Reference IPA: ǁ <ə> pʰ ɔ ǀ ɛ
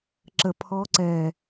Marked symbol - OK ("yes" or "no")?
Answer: yes